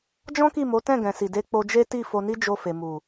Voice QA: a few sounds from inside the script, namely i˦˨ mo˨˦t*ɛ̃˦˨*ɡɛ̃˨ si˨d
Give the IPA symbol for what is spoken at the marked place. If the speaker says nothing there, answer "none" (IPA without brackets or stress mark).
ɛ̃˦˨